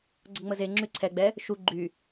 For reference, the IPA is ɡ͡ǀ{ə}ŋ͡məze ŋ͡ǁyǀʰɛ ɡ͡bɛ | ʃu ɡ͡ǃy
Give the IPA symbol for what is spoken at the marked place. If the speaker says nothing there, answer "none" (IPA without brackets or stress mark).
ə